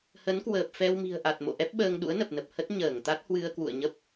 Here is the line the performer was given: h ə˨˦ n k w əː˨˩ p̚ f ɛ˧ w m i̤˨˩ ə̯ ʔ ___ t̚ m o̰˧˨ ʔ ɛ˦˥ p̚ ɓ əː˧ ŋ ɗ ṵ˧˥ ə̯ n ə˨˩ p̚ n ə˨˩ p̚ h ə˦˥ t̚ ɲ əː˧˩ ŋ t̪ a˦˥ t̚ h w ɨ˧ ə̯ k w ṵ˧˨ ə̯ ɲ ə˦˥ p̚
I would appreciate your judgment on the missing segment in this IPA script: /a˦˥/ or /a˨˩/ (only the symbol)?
a˨˩